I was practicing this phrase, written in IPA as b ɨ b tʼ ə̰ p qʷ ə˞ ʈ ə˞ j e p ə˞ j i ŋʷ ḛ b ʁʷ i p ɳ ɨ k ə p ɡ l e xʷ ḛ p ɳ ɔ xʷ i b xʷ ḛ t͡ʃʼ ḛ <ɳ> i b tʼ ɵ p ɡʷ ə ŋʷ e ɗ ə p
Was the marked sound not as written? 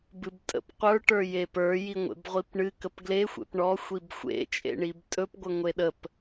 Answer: no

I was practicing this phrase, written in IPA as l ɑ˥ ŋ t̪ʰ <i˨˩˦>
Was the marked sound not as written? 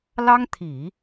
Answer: no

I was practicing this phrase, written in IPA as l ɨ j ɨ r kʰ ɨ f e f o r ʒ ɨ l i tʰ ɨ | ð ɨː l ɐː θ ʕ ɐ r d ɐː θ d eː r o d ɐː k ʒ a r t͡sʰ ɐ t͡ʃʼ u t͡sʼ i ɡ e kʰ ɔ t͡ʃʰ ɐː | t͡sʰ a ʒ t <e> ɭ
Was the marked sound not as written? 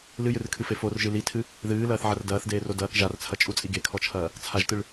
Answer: yes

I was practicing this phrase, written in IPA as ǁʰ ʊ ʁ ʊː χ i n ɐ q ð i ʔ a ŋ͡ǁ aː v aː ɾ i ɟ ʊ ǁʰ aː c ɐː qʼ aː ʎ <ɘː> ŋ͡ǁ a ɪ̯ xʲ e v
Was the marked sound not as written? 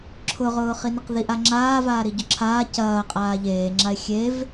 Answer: yes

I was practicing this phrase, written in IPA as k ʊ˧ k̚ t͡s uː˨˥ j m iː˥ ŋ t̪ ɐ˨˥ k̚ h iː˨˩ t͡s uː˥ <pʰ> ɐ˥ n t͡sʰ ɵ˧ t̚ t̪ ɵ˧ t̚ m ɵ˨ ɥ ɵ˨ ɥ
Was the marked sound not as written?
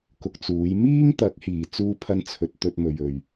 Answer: no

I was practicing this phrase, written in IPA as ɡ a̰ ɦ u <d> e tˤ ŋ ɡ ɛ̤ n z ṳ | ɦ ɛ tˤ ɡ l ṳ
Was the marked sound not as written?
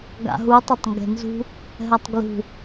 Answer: yes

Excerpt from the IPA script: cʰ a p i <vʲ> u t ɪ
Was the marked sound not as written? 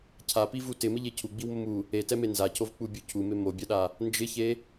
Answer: yes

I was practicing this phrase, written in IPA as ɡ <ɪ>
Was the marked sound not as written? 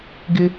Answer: no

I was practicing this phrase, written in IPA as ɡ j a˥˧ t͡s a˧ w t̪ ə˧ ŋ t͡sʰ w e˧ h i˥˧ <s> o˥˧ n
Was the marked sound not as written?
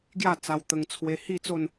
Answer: yes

